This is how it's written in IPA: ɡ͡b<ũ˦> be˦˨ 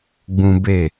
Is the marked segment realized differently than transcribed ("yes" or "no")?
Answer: no